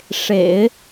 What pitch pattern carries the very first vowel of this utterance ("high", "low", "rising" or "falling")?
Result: low